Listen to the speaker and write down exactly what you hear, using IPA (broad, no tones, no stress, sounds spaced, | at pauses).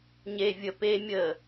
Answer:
ɲ e vʲ ə p e mʲ ə